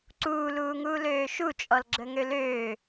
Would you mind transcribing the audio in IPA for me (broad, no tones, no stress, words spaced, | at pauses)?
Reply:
ǀuːluːŋuːløː ʃut͡ʃʼɔl ɡ͡ǁəŋøløː